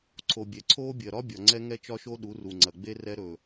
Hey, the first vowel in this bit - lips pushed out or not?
yes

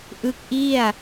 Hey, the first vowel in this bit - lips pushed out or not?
no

